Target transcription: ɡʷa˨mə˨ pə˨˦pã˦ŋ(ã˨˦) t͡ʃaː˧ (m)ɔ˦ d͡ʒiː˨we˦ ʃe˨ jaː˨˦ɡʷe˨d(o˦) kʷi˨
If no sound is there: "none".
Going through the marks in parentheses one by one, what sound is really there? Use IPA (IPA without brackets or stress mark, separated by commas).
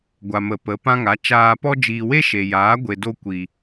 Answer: a˨˦, p, o˧